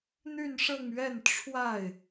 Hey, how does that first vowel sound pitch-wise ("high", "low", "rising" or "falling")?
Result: falling